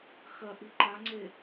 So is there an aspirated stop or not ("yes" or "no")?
no